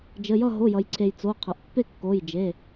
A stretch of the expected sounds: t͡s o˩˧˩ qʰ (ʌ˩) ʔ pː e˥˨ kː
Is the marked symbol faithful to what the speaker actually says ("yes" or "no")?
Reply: yes